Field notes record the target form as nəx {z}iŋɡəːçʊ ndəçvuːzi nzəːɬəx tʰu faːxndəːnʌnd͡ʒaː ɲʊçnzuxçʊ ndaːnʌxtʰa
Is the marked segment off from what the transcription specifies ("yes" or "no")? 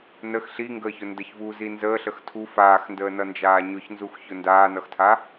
yes